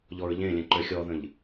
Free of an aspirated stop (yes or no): yes